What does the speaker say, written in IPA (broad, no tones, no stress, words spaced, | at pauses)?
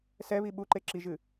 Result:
sɛβi ɓuǃe ǁiʒɨ